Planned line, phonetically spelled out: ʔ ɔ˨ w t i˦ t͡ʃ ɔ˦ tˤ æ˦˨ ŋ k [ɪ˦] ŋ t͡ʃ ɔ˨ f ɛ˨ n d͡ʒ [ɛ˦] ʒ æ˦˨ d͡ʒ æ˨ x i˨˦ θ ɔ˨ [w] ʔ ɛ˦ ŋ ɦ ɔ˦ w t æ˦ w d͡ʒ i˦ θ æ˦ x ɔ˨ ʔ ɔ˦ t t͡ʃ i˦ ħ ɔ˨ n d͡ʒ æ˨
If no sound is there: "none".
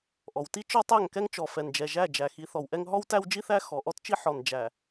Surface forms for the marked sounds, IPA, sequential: ɛ˦, ɛ˨, w

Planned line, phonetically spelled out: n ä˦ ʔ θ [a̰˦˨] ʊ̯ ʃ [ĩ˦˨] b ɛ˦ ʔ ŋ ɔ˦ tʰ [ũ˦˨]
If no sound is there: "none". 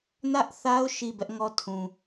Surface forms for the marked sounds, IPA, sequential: a˦, i˦˨, ũ˨

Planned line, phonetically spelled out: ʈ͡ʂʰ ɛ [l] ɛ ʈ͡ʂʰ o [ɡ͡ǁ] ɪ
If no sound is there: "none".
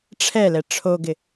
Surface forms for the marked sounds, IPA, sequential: l, ɡ

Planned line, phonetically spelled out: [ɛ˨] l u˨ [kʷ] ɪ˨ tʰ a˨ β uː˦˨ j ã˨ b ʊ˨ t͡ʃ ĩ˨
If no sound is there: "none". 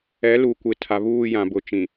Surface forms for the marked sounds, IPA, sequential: ɛ˨˦, kʷ

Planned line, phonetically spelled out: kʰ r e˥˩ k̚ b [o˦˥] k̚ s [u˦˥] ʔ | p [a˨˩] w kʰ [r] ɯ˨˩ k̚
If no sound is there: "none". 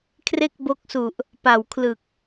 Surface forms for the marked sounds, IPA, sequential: o˦˥, u˨˩, a˨˩, l

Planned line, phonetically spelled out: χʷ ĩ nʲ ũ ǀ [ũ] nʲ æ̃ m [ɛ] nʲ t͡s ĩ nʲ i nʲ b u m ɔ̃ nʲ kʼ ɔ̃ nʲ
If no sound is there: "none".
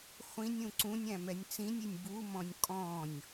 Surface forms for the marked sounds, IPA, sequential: ũ, ɛ

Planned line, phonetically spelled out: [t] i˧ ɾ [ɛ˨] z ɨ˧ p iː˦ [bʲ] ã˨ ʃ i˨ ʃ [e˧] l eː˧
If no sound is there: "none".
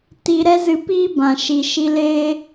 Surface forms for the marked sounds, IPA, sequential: t, ɛ˦, b, i˧

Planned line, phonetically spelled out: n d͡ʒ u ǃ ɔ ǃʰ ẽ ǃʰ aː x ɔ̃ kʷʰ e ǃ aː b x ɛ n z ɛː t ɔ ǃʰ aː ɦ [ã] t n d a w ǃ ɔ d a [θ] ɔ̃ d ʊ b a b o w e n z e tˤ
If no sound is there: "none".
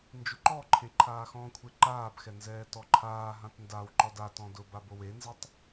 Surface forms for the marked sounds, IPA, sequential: ã, t

